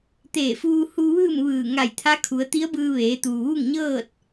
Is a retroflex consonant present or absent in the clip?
absent